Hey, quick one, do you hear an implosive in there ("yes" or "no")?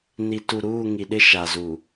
yes